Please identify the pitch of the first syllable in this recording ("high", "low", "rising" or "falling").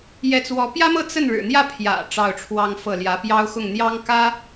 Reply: rising